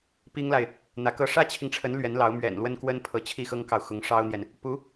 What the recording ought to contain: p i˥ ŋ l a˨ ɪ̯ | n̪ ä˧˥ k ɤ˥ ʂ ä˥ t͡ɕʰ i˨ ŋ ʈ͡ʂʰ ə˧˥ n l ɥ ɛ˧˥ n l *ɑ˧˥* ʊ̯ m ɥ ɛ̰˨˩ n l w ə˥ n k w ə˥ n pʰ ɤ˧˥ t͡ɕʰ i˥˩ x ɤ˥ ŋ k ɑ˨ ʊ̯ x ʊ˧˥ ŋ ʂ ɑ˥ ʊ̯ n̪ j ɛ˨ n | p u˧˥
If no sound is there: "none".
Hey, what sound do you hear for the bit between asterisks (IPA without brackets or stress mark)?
ɑ˧˥